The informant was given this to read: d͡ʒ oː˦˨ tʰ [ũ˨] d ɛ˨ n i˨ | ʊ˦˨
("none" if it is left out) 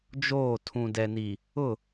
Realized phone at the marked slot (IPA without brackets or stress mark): ũ˨